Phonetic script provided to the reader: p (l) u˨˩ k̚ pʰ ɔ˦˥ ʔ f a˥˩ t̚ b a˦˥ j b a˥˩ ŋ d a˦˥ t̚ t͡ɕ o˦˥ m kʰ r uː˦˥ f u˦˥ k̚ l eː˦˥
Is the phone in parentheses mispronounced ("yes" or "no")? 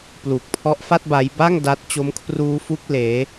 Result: no